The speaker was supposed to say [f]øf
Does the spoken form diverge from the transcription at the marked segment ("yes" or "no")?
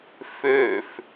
no